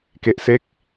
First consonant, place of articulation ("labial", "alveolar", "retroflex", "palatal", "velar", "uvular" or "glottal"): velar